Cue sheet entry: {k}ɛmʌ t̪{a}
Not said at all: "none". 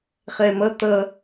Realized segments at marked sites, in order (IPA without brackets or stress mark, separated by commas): χ, ʌ